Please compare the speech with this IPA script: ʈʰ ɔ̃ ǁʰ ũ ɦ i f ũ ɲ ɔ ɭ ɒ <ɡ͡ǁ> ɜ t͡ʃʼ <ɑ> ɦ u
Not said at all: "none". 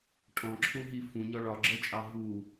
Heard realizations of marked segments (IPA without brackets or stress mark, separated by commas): ɡ͡ǁ, ɑ